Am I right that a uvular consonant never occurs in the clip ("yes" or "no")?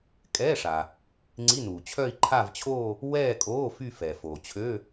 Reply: yes